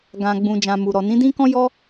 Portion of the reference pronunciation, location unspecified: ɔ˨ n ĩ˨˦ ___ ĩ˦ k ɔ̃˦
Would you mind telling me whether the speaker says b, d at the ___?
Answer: d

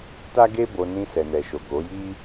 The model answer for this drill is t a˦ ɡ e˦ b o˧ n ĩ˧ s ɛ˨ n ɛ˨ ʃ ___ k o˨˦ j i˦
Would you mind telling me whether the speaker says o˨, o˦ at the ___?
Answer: o˨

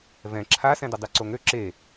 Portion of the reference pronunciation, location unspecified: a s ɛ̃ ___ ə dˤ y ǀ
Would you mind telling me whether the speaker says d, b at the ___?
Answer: d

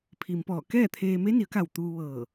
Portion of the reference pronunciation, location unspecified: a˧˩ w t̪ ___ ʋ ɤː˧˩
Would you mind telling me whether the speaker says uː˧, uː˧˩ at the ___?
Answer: uː˧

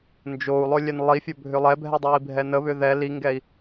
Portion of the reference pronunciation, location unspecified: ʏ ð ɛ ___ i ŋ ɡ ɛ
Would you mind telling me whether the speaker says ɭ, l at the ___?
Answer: l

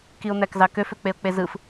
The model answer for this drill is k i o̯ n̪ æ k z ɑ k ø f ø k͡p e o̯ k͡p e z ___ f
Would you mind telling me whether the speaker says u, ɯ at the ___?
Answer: ɯ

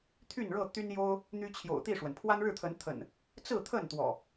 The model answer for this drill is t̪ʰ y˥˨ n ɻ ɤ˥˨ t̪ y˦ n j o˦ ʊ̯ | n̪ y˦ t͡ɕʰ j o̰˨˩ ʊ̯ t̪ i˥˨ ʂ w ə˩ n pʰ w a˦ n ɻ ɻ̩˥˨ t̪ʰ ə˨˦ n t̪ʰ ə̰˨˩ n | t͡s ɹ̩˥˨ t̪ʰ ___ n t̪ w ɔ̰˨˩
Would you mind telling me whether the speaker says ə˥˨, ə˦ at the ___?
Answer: ə˥˨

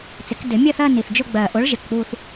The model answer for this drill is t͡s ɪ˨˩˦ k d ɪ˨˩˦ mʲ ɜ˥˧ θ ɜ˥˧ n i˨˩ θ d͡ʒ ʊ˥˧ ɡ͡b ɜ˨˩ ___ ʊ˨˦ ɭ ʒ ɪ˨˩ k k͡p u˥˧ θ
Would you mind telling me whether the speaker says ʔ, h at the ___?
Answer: ʔ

